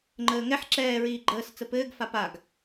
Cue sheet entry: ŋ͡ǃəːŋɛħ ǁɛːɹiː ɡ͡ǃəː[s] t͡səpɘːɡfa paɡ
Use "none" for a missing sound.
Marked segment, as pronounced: s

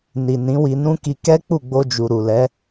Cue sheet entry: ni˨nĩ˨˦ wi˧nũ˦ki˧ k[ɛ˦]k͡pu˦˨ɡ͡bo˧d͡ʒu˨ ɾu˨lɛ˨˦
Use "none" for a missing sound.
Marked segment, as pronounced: ɛ˦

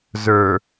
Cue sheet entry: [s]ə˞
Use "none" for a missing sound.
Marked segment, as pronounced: z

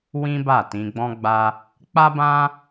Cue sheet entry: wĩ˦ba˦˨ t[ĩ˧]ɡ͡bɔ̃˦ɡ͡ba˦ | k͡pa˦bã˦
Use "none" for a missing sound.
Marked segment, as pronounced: ĩ˧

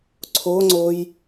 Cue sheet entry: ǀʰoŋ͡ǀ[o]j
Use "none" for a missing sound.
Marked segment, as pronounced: o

